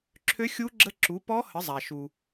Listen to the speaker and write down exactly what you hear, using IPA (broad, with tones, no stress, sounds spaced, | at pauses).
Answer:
ǁʰ ø˧˥ xʲ u˧˥ ɡ͡ǁ ə˧˥ ǁ u˩˥ p ɔ˧˥ h ə˩˥ zˤ a˩ ʃ u˩